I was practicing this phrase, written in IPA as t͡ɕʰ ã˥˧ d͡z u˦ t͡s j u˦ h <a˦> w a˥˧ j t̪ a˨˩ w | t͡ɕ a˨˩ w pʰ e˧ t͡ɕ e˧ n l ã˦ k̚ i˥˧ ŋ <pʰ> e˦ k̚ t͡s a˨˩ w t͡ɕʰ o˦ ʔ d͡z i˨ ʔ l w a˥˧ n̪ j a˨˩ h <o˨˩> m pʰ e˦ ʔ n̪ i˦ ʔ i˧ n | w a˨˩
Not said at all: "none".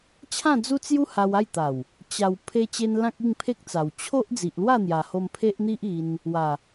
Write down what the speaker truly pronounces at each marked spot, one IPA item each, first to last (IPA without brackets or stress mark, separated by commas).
a˧, pʰ, o˧